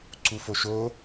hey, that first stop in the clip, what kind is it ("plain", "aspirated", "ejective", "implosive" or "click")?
click